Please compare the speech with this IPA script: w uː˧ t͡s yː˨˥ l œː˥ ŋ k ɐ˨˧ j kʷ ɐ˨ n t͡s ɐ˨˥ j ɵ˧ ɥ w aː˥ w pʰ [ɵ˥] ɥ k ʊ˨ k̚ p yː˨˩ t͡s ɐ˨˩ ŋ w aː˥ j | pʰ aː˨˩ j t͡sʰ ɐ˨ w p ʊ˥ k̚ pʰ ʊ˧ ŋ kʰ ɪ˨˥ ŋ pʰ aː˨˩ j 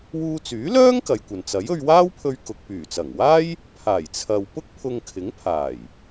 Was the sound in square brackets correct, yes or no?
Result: no